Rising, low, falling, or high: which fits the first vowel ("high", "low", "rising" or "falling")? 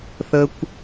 high